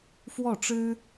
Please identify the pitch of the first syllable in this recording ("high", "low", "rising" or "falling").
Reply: falling